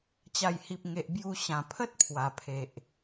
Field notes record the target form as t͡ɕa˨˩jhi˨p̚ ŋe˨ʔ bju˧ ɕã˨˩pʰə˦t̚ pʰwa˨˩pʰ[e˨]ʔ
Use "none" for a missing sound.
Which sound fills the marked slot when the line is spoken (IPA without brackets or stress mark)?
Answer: e˨